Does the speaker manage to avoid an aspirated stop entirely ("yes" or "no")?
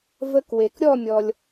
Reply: yes